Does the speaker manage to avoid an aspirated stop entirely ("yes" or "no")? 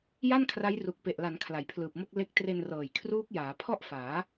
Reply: no